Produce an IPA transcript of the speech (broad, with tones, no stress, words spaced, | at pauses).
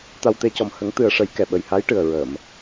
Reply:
t̪a˧wt̪e˧˥cɔ˨˩m hə˨˩˦ŋt̪ɨ˨˩ə̯ʂə˨˩˦j kɛ˨˩ɓə˨˩jha˧˥jʈɨ˨˩ə̯ ɹə˨˩˨m